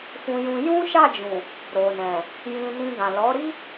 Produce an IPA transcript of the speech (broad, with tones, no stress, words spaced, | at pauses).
fũ˧jũ˧ jũ˦ʃa˦˨d͡ʒũ˨ | ɾo˨nɛ̃˨ | jĩ˧nĩ˧ ɡã˨lɔ˨˦ɾi˦